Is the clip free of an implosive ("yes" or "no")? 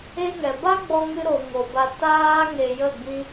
yes